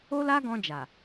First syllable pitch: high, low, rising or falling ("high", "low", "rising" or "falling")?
high